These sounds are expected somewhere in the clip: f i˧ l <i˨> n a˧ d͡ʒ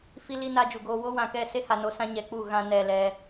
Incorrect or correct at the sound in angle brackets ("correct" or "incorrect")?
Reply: incorrect